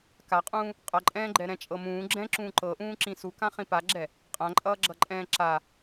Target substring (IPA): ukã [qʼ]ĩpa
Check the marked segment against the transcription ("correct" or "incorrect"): incorrect